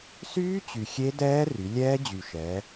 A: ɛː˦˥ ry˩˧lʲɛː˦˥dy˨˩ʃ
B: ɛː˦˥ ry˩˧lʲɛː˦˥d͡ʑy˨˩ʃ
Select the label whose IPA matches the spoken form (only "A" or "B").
B